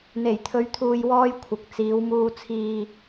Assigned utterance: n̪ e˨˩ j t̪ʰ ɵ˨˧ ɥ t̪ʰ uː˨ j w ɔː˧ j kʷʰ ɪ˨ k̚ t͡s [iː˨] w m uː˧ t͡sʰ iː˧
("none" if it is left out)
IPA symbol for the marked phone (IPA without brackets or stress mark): iː˨˧